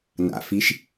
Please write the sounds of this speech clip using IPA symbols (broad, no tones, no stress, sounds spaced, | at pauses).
n a̰ f i ʃ